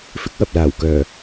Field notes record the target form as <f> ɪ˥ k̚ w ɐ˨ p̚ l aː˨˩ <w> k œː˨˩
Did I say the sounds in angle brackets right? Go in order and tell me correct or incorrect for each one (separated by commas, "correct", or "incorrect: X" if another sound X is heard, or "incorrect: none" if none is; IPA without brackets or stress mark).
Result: correct, correct